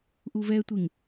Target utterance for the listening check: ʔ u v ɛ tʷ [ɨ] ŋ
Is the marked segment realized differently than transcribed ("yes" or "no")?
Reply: no